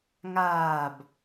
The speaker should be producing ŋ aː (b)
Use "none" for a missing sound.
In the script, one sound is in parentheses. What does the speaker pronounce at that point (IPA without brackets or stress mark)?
b